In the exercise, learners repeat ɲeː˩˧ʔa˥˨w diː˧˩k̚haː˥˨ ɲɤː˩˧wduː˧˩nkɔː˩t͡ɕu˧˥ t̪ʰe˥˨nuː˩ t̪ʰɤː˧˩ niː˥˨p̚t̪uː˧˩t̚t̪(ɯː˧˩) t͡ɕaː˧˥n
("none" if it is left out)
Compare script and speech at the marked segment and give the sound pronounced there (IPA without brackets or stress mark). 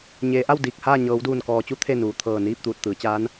ɯː˩˧